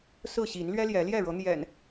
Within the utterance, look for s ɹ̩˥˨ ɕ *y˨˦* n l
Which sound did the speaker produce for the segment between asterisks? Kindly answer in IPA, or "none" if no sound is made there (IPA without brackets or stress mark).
i˨˦